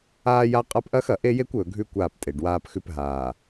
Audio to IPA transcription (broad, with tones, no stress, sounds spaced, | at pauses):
aː˦ j a˦ qʼ a˦ p ʔ ɐ˦ x ɐ˨ ʔ e˦ j e˦ kʷ ɵː˨ ɡʱ ʉ˦ kʷ aː˦˨ p tʼ e˨ ɖ w aː˦ p x ʉ˦ p ɦ aː˨